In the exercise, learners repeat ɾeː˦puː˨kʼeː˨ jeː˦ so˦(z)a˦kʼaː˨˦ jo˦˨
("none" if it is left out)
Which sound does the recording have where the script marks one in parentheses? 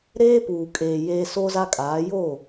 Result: z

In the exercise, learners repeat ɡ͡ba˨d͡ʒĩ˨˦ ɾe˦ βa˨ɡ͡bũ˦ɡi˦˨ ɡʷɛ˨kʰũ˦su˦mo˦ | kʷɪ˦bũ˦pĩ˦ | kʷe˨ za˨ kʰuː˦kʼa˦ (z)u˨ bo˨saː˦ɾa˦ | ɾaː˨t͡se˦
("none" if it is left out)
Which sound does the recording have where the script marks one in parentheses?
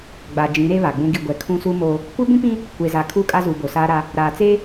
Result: z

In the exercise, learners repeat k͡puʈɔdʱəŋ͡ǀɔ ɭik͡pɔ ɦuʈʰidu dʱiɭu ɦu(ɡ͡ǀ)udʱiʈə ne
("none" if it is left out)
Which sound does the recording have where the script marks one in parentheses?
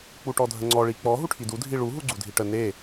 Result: ɡ͡ǀ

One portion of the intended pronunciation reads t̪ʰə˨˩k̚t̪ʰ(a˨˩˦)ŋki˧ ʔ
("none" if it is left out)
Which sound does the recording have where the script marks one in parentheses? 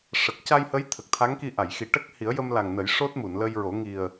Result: a˧˥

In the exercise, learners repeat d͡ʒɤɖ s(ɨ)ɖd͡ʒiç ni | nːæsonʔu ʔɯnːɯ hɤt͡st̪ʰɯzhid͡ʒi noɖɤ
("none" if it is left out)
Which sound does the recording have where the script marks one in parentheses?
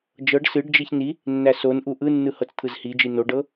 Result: ɨ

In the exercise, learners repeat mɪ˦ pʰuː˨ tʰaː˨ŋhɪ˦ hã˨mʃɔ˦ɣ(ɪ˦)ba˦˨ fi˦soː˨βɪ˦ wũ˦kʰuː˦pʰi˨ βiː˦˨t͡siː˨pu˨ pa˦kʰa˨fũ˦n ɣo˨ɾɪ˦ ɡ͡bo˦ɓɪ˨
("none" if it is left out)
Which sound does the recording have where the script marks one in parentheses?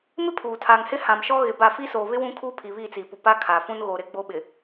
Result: ɪ˨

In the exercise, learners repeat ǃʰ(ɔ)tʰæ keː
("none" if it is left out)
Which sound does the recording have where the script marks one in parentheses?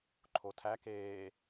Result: o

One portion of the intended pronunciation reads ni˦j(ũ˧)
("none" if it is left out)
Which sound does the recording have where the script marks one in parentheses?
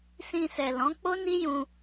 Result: ũ˧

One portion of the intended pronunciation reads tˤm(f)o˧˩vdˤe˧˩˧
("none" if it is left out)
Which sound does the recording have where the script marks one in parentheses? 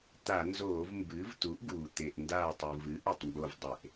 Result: b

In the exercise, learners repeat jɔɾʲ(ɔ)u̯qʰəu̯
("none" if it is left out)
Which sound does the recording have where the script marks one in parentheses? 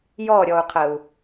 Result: ɔ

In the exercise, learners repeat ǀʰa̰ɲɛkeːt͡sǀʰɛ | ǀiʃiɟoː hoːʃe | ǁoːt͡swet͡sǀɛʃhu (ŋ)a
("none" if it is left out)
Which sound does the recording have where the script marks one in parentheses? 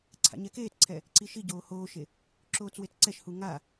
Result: ŋ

